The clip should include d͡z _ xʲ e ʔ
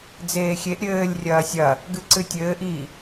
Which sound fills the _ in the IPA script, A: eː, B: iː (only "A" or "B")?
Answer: A